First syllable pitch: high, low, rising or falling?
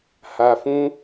low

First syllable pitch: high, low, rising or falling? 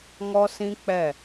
high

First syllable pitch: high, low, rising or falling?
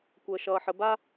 low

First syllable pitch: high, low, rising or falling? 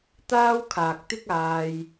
high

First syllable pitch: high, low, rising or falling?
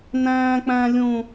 high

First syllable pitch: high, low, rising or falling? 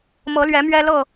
rising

